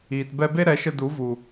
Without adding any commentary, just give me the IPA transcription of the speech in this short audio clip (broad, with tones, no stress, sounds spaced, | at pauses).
iː˨ t b ɛ˧ b e˦ ɾ ɛ˨˦ ʃ ə˧ d u˨˦ v u˨